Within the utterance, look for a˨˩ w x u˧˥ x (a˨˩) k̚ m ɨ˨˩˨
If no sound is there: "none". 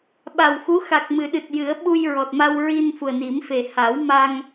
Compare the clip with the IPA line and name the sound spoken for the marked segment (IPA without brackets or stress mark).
a˨˩